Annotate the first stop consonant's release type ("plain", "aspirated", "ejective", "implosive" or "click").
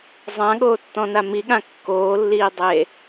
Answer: implosive